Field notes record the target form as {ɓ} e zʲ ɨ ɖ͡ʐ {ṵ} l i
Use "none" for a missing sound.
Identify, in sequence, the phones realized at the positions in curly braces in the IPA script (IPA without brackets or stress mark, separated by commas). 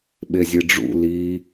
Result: ɓ, ṵ